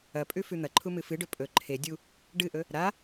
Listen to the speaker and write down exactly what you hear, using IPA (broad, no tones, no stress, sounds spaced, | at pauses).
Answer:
ɐ pʼ ʉ f ʉ n̪ ɐ ǃʰ u m ɨ f ɨ ɖ ɵ pʼ ɵ ǃʰ e dʲ u | ɖ ɨ ʔ ɵ | ɾ a